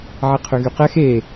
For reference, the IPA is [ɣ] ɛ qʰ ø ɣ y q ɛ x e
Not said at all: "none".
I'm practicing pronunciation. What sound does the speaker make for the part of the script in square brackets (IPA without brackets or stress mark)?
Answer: ʕ